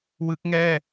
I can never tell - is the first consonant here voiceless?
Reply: no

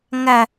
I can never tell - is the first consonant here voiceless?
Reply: no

